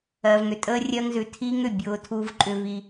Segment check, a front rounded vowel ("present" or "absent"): present